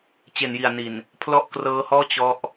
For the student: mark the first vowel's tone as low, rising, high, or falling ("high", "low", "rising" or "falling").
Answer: low